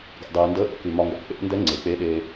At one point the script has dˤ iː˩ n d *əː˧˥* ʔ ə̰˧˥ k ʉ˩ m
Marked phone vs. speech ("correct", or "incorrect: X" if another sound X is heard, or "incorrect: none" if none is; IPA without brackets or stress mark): correct